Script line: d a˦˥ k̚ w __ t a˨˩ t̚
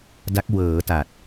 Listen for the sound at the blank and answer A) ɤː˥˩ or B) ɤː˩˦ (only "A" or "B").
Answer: B